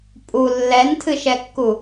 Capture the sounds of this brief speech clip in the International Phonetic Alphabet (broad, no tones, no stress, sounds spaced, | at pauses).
pʼ u lː ɛ n tʰ ɨ ʃ ɛ kː u